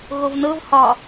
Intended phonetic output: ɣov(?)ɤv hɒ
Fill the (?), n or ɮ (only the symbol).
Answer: n